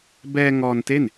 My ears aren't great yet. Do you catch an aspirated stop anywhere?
no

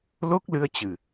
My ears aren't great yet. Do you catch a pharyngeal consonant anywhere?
no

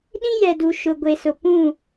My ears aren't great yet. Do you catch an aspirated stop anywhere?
no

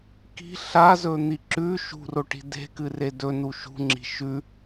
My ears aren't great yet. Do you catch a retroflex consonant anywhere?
yes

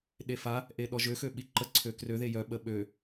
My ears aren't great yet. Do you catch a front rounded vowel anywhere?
yes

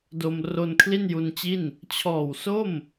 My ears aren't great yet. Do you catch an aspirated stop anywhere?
yes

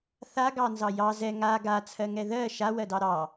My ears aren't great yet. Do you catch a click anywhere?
no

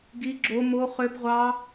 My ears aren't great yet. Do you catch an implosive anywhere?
no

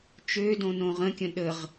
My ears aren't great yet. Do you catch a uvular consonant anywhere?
yes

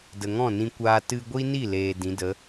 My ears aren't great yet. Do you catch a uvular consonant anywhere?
no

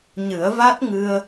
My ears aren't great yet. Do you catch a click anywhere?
no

